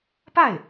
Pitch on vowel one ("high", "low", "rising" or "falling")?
falling